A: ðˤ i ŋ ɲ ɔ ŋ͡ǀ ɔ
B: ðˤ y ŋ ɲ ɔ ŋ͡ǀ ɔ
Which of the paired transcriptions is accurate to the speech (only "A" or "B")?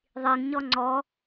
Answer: A